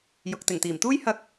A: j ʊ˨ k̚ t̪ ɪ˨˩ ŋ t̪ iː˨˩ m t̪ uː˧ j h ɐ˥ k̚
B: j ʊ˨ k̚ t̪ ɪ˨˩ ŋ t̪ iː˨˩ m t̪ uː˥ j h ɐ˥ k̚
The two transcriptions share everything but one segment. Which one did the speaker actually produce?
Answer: B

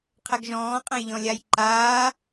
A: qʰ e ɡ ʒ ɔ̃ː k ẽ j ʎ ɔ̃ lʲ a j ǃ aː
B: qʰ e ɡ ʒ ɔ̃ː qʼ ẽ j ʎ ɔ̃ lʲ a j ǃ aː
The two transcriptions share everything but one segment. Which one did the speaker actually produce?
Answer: B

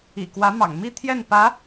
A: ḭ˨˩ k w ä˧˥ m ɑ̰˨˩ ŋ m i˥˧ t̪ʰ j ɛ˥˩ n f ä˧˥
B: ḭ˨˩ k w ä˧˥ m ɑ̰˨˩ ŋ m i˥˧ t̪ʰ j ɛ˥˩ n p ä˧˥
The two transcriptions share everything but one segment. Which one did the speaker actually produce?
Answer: B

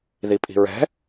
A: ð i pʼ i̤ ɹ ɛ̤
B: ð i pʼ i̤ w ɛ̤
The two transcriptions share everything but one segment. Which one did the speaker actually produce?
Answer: A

